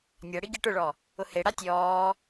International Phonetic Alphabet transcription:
nʲ a ɽ i ɡʲ ɛ ʈ ʊ ɭ ɔ | ʊ h e ɽ a tʲ ɔː

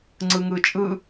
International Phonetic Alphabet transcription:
ŋ͡ǀ ɯ ŋ ɯ t͡ʃʼ ɯ

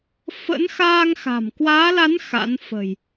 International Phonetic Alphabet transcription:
f ə̰˧˥ n x aː˧ ŋ x a̤˨˩ m k w aː˨˦ l a˨˦ n x a̰˧˥ n f ə̤˨˩ j

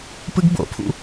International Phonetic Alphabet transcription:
p ɯ ɡ b o̰ pʰ ṵ

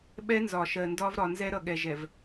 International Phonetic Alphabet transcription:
ɓ ɛ˦ n z ɒ˨ ʃ ɜ˨ n d ɒ˦ v ɾ ɒ˨ n z ɛ˦ ɾ ʌ˨ ɠ ɛ˨ ʒ ɛ˨ v

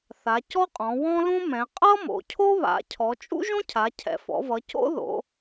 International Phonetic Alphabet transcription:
θ a˩˧ c ɔ˥ qʼ ɔ̃˩˧ w ɔ̃˥ l ũ˥ m ɛ̃˩˧ qʼ ʌ˥ m o̰˩˧ cʰ o˥ β a̰˩˧ cʰ ɔ˩˧ t͡ʃʼ ṵ˥ ʒ õ˥ cʰ a˩˧ cʰ ɛ̰˩˧ f ɔ̰˩˧ v ʌ˩˧ c o̰˥ ð o̰˩˧

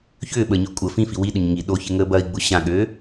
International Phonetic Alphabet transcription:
ç ʏː ɓ əː ɲ ø kʷʼ ə f ĩ f i w i ɗ ʊ ɲ ŋ i ɗ o ç ɪ ŋ əː b ɐ i̯ ɡ͡b ʊ ɕ ã ɠ øː

